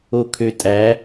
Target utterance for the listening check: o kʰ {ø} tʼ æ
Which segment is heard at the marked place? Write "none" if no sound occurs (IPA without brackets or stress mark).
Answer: ø